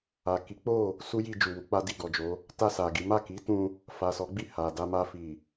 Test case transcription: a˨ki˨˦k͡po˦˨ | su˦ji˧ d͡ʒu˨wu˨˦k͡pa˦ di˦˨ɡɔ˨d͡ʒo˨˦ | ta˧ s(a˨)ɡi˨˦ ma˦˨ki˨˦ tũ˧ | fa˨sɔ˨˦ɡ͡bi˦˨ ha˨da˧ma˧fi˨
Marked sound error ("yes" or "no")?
no